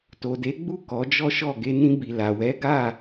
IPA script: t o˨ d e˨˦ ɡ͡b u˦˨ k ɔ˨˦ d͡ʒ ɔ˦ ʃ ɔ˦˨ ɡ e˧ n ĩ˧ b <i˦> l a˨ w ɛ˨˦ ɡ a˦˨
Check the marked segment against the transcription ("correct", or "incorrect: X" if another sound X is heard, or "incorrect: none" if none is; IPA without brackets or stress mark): incorrect: i˨